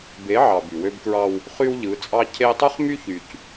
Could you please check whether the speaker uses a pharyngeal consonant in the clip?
yes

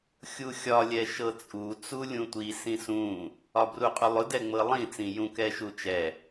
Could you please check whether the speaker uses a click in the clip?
no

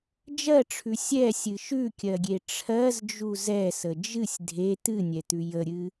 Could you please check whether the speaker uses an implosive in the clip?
no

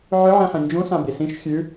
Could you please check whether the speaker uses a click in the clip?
no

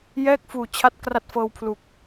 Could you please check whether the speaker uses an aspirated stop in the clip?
yes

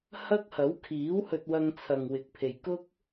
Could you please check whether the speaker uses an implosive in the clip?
no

